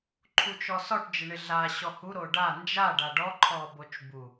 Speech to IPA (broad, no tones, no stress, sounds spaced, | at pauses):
ǃʰ u t͡ʃ ɔ s ɔ ʈ d͡ʒ ɪ ɳ ɪ ɮ a ɕ ɔ h u ɾ o ɖ a n d͡ʒ a ɖ a ɖ ɔ ǃʰ ɔ b o t͡ʃ b u